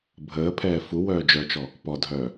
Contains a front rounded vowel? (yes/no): yes